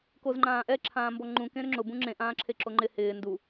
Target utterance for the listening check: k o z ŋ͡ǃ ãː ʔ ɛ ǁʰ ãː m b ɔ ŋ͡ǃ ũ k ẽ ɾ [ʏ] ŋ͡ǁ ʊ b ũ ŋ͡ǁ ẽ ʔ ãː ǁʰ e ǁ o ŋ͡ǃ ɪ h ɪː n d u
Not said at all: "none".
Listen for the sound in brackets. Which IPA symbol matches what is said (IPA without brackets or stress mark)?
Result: ʏ